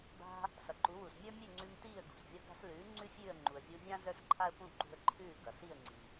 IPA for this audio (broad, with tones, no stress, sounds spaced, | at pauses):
b a̤˧ | s ʌ˩ ǃ u˩˥ w u˩ s mʲ ə˞˥ mʲ ʉ˥˩ ŋ͡ǀ ʉ˧ m t iː˥˩ ə̯ ɡ ṳ˩ s vʲ ʌ˧ ɡ a̤˧ s l ʉː˩˥ ŋ͡ǀ ʉ˥ fʲ ʉː˥˩ ə̯ ŋ͡ǃ u˩ ə̯ vʲ u˧ vʲ ã˥ z ə˞˥ s ǃʰ a˥ ə̯ p ũ˥˩ ǃ ṳ˧ ə̯ ǃʰ ʉː˥˩ ɡ ʌ˩ s i˥˩ ə̯ ŋ͡ǀ i˩